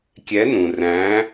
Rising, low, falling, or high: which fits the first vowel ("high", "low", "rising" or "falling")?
rising